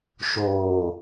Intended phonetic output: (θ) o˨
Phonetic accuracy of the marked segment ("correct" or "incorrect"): incorrect